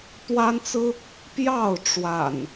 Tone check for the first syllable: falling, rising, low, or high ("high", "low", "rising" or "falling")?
high